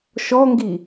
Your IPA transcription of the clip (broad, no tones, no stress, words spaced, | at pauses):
ʃɔŋɡi